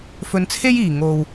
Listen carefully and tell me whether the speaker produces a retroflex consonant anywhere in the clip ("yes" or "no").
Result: no